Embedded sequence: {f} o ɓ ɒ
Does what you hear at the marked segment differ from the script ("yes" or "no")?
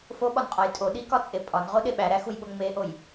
no